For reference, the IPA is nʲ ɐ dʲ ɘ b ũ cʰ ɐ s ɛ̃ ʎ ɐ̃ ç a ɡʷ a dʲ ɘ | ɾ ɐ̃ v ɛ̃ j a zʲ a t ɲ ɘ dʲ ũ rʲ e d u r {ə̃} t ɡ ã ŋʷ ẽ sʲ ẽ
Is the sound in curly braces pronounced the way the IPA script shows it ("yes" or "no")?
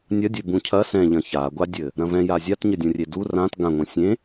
no